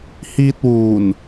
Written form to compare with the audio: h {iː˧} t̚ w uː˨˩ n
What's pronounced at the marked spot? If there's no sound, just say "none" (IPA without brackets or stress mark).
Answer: iː˧